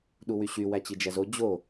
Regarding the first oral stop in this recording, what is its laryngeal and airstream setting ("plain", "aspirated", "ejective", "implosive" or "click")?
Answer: implosive